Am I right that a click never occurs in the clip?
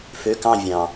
yes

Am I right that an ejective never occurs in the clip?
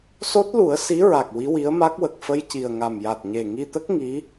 yes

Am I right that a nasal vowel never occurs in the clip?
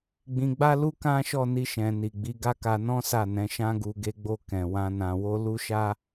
no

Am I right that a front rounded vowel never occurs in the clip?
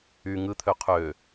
no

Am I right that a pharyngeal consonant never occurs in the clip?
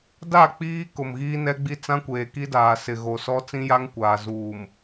yes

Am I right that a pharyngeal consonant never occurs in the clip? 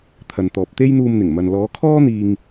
yes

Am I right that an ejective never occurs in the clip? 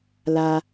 yes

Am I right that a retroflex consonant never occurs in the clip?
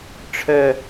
no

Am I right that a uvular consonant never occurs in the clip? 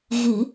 yes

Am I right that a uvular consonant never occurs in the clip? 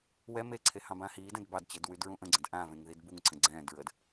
yes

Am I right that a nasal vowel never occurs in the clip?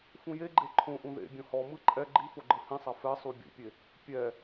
no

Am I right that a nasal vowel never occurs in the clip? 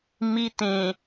no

